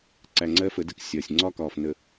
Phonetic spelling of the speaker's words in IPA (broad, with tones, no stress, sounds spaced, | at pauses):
ǀ æ˨ ŋ͡ǀ ɜ˦ f ə˨˦ d ə˦ k sʲ ɒː˨ sʲ ŋ͡ǀ ɒ˦ k ɒː˨ f n ə˨